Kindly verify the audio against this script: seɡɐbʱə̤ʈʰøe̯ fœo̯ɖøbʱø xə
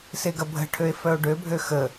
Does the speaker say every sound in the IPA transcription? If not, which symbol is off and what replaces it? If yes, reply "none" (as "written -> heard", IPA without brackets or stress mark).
none